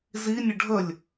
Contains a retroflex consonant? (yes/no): yes